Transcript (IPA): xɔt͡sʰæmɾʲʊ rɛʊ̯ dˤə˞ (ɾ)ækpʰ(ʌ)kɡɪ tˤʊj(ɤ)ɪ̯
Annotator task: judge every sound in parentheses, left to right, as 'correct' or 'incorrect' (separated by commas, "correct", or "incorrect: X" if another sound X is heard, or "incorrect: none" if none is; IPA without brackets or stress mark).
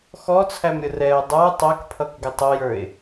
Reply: incorrect: tˤ, correct, incorrect: ə˞